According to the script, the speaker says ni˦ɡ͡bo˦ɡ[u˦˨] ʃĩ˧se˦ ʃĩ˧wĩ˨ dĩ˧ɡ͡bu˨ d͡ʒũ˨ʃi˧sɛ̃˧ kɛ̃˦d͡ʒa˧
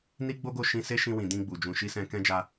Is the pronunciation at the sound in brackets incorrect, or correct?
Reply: incorrect